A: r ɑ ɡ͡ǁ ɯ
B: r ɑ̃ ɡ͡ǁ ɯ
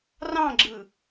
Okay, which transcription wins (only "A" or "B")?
B